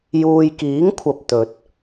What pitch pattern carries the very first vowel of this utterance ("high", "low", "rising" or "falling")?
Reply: low